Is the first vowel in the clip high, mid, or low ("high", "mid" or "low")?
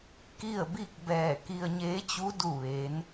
high